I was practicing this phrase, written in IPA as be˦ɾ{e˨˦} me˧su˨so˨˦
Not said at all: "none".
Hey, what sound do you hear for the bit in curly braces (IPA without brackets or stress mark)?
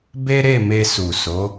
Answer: e˦˨